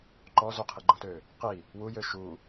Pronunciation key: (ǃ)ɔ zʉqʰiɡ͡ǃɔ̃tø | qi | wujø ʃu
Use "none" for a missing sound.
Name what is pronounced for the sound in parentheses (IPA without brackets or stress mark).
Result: ǃ